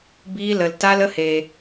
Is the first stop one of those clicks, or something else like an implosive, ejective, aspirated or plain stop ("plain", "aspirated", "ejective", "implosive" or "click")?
plain